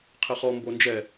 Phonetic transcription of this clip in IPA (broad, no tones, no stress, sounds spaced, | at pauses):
qʰ ɘ χ ɔ m b o n d͡ʒ ɛ